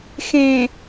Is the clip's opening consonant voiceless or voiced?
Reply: voiceless